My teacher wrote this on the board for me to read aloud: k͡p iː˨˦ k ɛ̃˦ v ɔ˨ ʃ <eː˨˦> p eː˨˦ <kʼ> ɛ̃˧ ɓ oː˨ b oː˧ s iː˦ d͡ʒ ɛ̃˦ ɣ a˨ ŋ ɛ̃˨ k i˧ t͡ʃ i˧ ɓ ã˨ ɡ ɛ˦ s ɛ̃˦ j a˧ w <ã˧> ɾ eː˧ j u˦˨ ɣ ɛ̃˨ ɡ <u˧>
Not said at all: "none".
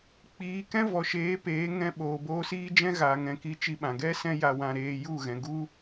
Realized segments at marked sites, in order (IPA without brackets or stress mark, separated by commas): eː˨˦, ŋ, ã˧, u˦